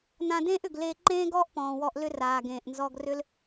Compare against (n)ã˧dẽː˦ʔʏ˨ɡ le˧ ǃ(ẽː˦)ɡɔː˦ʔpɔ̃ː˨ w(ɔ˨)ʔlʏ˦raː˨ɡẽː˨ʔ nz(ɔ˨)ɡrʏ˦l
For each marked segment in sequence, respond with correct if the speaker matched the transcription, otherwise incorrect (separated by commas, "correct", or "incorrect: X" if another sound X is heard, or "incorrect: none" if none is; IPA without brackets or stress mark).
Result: correct, correct, incorrect: ɔ˧, incorrect: ɔ˧